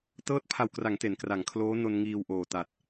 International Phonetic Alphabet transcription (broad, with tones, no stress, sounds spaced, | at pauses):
t ɤː˦˥ t̚ pʰ a˨˩ w k r a˩˦ ŋ t e˩˦ n k r a˩˦ ŋ kʰ l oː˦˥ n o˧ n ŋ iː˧ w ʔ oː˨˩ t a˨˩ t̚